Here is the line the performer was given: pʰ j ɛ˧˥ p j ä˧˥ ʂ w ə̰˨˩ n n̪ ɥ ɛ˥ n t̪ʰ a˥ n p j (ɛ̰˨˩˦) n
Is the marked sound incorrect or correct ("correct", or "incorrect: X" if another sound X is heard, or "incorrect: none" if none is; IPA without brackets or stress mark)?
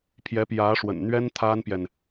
incorrect: ɛ˨